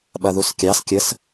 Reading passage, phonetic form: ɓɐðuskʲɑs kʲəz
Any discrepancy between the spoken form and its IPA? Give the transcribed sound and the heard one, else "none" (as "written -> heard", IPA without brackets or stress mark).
z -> s